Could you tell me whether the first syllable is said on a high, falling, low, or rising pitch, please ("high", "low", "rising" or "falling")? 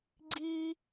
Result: high